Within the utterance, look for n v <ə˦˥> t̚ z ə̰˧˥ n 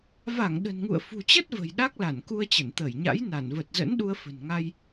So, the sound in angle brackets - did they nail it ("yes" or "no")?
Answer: no